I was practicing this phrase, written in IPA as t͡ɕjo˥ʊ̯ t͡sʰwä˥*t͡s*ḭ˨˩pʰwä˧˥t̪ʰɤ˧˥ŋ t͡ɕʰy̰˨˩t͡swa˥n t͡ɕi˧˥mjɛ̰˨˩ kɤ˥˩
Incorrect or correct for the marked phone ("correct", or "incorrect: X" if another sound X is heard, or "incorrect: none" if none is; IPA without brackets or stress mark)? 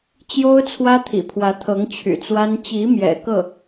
incorrect: t̪ʰ